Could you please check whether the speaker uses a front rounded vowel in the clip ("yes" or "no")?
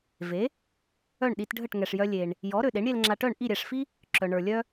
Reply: yes